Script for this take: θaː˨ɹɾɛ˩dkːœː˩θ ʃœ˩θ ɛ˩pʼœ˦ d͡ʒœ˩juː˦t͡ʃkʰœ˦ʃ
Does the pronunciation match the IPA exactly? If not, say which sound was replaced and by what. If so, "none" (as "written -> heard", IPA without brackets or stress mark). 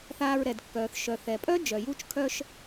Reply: none